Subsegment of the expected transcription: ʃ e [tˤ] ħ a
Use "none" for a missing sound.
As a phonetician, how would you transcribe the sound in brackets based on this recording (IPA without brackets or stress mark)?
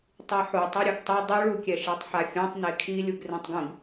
tˤ